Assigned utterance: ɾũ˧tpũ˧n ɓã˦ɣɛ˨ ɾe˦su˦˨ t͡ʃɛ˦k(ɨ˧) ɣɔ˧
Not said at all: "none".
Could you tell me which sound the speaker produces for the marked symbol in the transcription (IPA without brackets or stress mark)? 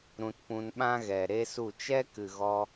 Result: ɨ˨